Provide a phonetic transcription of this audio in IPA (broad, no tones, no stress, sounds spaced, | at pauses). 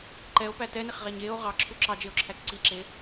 ǃ ɛ o̯ p æ t ɛ n e χ ʁ æ ɲ e o̯ ʁ ɑ ǁʰ u ǁ ɑ d͡ʒ e o̯ ǁʰ æ t͡s ǀ i ǁ e